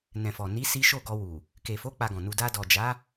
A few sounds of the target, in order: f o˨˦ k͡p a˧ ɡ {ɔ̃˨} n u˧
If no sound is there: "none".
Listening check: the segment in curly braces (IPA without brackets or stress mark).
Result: ɔ̃˨